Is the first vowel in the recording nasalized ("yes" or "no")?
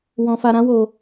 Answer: yes